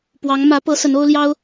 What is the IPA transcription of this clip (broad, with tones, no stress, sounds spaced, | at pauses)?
p w ɑ˧˥ ŋ m ä˧˥ p ɤ˧˥ s ə˧˥ n o˥ ʊ̯ l j ɑ˥ ʊ̯